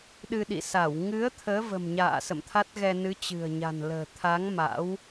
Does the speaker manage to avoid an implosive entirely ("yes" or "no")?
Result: no